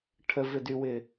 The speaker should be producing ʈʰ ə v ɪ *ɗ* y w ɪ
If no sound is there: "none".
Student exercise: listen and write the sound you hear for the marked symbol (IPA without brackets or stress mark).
d